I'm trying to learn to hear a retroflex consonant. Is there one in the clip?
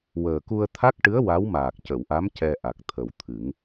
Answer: yes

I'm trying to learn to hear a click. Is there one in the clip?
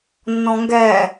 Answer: no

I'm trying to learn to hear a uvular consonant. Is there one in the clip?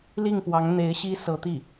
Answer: no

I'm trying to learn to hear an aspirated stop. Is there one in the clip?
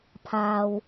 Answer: yes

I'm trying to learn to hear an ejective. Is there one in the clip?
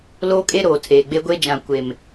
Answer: yes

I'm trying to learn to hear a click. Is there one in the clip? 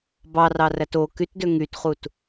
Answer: no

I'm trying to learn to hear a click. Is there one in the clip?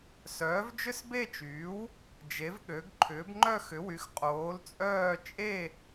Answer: yes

